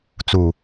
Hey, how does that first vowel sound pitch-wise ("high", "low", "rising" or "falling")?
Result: low